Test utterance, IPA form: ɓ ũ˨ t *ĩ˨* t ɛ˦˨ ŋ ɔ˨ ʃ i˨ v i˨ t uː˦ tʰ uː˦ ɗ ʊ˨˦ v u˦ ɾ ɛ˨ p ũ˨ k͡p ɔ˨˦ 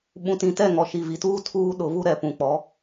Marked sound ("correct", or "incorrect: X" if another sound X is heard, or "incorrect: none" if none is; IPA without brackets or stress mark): correct